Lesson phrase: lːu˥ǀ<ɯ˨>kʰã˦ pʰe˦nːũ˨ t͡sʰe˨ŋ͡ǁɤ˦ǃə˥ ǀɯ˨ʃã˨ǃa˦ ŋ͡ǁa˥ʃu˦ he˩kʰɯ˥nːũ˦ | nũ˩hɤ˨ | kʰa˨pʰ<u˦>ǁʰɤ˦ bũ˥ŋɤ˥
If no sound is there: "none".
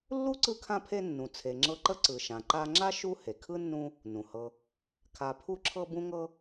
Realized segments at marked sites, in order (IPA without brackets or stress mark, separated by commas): ɯ˦, u˦